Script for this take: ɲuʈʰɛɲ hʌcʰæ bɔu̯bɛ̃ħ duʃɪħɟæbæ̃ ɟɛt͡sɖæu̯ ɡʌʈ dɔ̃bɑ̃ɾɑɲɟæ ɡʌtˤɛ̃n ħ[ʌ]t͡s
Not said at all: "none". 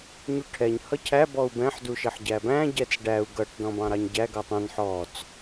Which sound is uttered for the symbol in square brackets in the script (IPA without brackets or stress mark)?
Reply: ɔ